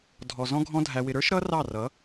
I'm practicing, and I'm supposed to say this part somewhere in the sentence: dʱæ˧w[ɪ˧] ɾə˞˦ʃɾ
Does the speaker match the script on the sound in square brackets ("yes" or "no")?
yes